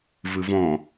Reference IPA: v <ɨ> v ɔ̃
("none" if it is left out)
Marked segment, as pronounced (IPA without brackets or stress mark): ɨ